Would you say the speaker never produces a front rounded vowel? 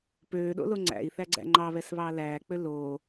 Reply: no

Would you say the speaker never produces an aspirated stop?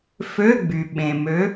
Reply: yes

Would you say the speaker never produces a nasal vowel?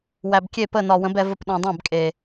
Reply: no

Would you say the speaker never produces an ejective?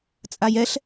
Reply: no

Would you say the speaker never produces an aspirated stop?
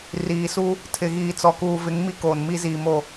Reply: no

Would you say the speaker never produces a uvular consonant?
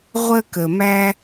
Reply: no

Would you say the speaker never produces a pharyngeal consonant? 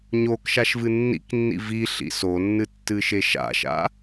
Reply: yes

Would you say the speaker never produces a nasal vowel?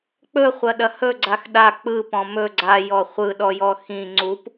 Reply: no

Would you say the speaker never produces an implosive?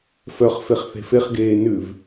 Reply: yes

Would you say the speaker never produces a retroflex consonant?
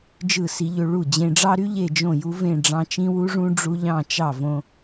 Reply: no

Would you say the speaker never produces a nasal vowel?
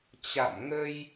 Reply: yes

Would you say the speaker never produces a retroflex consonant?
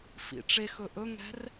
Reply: no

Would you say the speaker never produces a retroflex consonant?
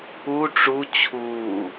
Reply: no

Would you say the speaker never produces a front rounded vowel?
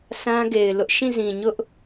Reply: yes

